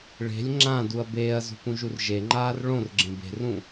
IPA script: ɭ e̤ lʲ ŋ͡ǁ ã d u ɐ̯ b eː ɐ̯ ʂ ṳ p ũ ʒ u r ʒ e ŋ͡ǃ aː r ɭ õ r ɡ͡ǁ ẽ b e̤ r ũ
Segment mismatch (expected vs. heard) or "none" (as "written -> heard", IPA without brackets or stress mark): ʂ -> z